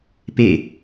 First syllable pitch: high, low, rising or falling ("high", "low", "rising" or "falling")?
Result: falling